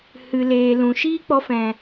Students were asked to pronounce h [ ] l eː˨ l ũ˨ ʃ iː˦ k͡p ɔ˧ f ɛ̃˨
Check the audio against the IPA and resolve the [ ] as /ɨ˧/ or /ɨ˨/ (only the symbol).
ɨ˨